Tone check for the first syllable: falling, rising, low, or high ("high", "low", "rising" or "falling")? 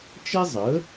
high